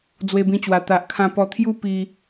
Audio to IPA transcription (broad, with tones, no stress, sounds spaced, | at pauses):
d͡z w e˧ b ĩ˧ t͡ɕ w a˨˩ t̪ a˨ ʔ kʰ ã˧ p ɔ˧ t̪ʰ j u˦ p i˧